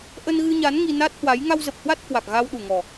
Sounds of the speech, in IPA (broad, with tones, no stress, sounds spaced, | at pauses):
ʔ ə˧ n ɣ ɨ˧ ɲ a˨˦ n ŋ i˧ n a˦˥ t̚ h w a˨˦ j ŋ a˧ w z ə˨˩ p̚ h w a˦˥ t̚ h w a˨˩ k̚ ɣ a˧ w ɗ u˨˩ ŋ ɔ˨˩